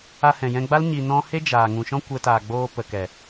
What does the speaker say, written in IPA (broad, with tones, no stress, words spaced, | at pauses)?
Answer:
a˧hɛ̃˨jɛ̃˧ɡ͡ba˦l ɲi˨ nɔ̃˦ he˦d͡ʒaː˨ ŋũ˨ʃɔ̃˦kʷɛ˧taː˨ ɡ͡boː˧ pə˨kɛ˨